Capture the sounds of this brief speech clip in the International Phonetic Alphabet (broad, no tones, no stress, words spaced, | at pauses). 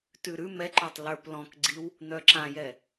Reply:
tʉɾʉ mɛǃœtˤ lə˞plɔ̃kɡ͡ǀiw | n̪œǁãjɛ